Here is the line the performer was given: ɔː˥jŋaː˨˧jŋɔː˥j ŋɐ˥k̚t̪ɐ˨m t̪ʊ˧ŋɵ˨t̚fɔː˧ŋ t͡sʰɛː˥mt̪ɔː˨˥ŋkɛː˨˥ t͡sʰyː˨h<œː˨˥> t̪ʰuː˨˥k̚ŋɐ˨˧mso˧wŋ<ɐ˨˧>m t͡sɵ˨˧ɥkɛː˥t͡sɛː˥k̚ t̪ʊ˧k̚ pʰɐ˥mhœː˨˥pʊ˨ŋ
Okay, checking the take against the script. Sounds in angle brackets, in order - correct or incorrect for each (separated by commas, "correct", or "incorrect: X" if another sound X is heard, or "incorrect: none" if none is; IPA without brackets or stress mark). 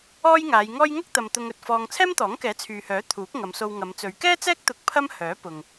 correct, correct